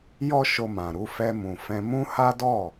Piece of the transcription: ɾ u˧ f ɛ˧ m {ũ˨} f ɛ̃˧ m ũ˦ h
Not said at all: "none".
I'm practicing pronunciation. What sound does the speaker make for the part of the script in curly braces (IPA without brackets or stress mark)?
ũ˨